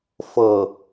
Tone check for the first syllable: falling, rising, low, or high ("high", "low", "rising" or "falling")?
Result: low